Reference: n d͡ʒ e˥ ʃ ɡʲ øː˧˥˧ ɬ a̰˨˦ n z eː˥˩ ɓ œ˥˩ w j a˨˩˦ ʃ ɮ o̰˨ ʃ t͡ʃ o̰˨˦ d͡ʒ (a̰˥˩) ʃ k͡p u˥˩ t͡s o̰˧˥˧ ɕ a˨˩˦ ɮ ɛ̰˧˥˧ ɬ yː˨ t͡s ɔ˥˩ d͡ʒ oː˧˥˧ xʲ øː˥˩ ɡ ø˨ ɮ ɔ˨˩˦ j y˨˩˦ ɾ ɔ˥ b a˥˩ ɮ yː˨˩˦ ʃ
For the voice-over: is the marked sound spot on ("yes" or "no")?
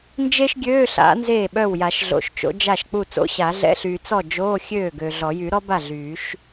no